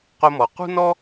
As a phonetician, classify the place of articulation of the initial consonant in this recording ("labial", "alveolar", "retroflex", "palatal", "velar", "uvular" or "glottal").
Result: uvular